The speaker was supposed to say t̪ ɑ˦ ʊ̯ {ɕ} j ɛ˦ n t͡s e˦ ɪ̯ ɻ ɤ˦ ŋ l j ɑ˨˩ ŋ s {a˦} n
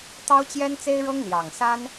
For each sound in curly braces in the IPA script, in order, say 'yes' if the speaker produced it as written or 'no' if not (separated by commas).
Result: no, yes